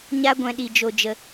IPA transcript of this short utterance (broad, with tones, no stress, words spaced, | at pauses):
ɲa˧ɡʷɛ̃˨ ɗi˨d͡ʒo˨d͡ʒə˨